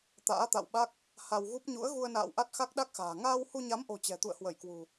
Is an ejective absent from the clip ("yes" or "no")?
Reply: yes